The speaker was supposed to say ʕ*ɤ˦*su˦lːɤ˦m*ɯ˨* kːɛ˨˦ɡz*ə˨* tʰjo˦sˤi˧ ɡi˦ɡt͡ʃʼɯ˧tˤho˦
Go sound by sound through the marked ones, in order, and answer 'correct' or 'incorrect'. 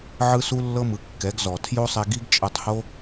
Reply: incorrect, correct, incorrect

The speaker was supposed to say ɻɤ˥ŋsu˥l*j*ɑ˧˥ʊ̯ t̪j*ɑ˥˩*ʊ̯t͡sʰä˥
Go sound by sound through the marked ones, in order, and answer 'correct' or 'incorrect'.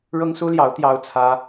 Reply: correct, incorrect

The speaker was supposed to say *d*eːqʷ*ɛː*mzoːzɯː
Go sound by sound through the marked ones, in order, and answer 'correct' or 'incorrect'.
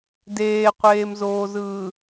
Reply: correct, incorrect

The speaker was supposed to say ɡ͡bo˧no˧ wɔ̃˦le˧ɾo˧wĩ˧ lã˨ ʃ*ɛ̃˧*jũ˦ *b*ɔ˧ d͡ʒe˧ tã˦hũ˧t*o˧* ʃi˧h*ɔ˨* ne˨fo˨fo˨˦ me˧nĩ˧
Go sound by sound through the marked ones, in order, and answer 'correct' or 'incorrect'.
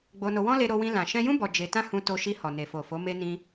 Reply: correct, correct, correct, correct

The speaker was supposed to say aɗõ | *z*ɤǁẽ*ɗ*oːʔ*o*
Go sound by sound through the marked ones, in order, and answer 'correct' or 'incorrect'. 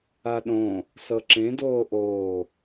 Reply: incorrect, incorrect, incorrect

